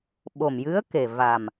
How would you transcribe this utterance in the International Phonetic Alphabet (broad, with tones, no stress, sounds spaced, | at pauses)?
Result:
ɓ o˨˩ m j ɨ˧˥ ə̯ k e˨˩ v a˨˩ m